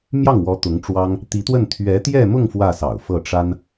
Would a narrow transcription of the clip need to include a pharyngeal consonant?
no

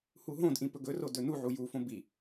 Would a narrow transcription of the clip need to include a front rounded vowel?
no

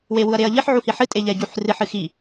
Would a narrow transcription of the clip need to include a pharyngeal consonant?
yes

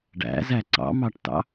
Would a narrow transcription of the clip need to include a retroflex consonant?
yes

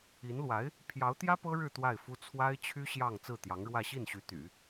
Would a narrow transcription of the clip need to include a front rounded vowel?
yes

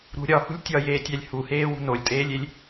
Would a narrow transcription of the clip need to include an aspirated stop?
no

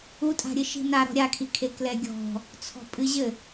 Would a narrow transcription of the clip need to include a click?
no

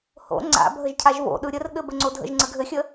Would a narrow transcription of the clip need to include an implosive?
yes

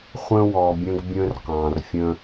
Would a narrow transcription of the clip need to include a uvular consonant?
yes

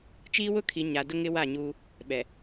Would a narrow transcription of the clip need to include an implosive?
yes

